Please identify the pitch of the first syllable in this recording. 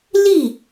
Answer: falling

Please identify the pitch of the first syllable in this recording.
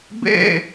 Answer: falling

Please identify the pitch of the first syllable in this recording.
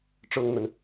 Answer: high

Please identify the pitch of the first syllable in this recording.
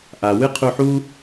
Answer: low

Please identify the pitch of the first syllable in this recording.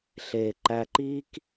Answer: low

